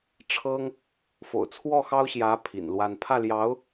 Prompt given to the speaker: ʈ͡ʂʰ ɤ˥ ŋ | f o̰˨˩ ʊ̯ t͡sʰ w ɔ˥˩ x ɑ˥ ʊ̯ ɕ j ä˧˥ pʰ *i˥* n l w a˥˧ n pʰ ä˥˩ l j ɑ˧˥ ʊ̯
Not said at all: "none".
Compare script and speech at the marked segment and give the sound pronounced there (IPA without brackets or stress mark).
ḭ˨˩